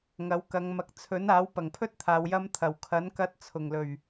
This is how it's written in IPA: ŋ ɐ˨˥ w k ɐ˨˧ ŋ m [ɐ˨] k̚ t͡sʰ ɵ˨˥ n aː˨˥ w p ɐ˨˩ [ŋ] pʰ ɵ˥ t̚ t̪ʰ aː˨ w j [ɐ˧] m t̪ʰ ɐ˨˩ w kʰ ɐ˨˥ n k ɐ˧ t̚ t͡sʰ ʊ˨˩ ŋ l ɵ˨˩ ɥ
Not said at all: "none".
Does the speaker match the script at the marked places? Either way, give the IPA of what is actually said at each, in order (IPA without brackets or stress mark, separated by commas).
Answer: ɐ˨, ŋ, ɐ˧